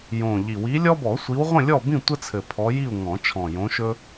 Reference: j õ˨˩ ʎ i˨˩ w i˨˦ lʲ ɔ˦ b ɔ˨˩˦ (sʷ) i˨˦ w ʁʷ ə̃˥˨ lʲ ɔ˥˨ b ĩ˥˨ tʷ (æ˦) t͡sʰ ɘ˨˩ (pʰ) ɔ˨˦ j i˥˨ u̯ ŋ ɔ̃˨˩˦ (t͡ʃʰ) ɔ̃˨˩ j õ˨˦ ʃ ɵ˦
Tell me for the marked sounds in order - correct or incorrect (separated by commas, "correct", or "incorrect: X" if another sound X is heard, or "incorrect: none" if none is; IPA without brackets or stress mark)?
correct, incorrect: ə˦, correct, correct